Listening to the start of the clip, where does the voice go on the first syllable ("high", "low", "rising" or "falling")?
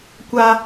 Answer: high